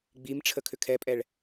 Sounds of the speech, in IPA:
ɡ͡bimʈ͡ʂʰəkʰʏ kʰɛpʼɛɭ

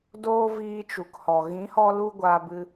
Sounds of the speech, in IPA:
doː˦viː˧ t͡ʃu˨khɔ˨ ɣĩ˨˦hɔ˧lu˧ ɡʷaː˧bɨ˧

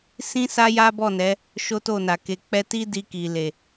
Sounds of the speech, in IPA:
sĩ˦ sa˦ja˦bɔ˦˨nɛ˨˦ | ʃo˦to˦˨na˨ke˧ k͡pɛ˧ti˦ di˧ki˨ le˨

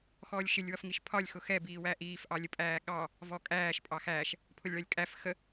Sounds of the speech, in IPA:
xɔːlʲʃɪlʲ wʌfŋiʃpʰɒlʲ xʊxɛ biːwæʔiːf ʔɑlʲəpʼæːɠɑ | vɔkʼæːʃ pʼɑxæːʃ | pʰʊlʲɭɜlʲkʼæf xə

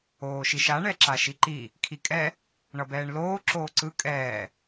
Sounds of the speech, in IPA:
oːʃiʃa ɳɛǁaʃiǃi | kʰikʼɛ | ɳʌbɛːɳloː ǁoːǀɯ kʼɛː

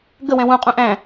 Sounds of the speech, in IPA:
ɡə wɛ̃wũqʼũ ʔæ̃

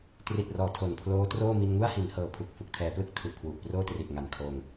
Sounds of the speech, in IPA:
tri˨˩t̚rɔː˩˦ tʰo˨˩npʰloː˦˥troː˥˩ mi˧nŋu˥˩a̯hi˩˦n hɤː˨˩pʰu˨˩k̚ fu˨˩k̚tʰɛː˩˦plɯ˥˩k̚ tʰu˨˩ʔkʰwu˨˩ʔproː˥˩ tri˨˩ʔŋa˨˩nkʰoː˧ŋ

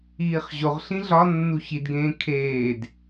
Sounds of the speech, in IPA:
iːχʑoʁ ɬĩɮɒ nːuçidɡẽː kʰeːd

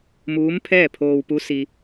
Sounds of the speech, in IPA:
muː˧˥m pʰɛː˥˨pʰoː˧wpu˧˥ si˧

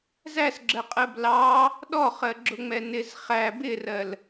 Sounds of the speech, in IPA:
zæsɡ͡ǁɜqʼɜb lɑ | ɗɔχɜɡ͡ǁʊŋ͡mɛ nɪz χæ bɪrɜl

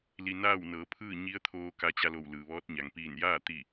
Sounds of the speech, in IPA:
li˧ naː˥˨wnɤː˩˧pʰɯː˥˨ ɲi˧˥ə̯t̪ʰoː˧ ka˧t͡ɕa˧lo˧˩w lɯː˩ʋɔː˧˥t̚ɲa˩ŋ piː˧˩njaː˥˨ t̪i˧˩

